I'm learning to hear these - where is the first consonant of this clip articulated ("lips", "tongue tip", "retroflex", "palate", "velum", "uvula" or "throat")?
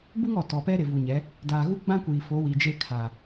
lips